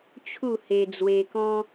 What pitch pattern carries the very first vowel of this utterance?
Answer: falling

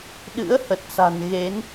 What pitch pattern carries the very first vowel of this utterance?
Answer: rising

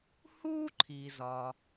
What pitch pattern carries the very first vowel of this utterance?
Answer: high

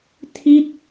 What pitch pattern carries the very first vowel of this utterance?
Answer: falling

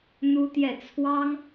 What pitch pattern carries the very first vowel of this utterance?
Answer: high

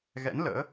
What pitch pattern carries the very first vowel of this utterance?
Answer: rising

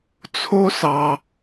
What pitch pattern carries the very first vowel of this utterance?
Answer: high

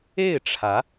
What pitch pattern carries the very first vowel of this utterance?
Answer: falling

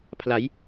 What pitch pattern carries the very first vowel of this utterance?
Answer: rising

